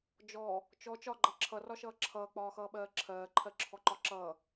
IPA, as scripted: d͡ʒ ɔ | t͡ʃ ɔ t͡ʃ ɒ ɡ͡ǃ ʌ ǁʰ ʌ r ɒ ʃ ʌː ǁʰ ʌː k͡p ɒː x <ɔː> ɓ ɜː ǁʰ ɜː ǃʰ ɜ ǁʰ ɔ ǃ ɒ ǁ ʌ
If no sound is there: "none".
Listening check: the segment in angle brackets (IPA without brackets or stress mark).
ʌː